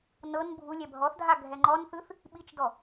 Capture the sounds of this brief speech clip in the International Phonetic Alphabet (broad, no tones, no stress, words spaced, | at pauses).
nɤn bʱulʲɛ bʱɔθdʱa ɡʱɛŋ͡ǃɔnθɯθ | ɓit͡ʃdɔ